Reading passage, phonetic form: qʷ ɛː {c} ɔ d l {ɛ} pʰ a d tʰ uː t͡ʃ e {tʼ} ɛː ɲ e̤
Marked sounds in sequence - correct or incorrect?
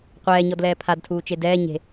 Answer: incorrect: ɲ, incorrect: ɛː, incorrect: d

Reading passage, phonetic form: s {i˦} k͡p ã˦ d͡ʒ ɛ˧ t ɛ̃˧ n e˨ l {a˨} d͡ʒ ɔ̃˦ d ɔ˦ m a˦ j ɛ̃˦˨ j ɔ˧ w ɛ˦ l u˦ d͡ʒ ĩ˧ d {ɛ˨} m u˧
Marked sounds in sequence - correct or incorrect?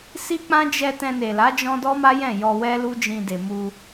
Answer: correct, incorrect: a˨˦, incorrect: e˨

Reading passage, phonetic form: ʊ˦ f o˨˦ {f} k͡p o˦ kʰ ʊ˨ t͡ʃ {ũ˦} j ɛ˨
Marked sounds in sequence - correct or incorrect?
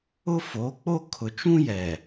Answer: incorrect: none, correct

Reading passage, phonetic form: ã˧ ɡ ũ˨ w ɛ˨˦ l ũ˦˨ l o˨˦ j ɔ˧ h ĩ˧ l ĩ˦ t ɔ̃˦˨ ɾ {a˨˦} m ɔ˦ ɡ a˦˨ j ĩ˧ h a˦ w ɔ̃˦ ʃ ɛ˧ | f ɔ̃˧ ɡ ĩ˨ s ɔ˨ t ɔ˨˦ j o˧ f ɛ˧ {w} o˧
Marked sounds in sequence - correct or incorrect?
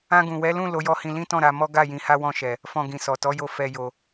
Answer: correct, incorrect: j

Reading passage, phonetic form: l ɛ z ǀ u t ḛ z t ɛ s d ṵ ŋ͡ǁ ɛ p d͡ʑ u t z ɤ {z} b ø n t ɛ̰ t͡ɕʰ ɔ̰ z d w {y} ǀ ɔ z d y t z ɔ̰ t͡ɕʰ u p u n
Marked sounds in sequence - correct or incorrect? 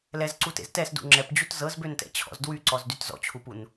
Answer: correct, correct

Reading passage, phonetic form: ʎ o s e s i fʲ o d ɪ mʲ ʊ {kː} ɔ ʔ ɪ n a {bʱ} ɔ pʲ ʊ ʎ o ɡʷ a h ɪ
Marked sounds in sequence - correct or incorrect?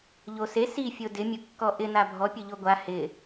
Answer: correct, correct

